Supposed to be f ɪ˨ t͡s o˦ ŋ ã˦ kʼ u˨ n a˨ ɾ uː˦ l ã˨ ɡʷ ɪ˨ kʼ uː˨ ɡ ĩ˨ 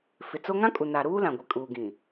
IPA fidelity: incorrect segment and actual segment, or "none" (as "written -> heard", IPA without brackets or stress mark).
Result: none